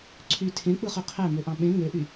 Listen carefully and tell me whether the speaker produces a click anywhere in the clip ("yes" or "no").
yes